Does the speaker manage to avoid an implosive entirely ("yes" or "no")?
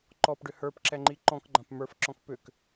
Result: yes